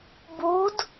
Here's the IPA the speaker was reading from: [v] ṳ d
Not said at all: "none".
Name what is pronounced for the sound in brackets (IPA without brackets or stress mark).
b